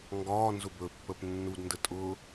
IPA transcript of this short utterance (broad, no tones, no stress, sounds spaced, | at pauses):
ŋ ɡ ɒː n z ʊ b ɵ pː ə p nː u d n d ə tʼ ʊ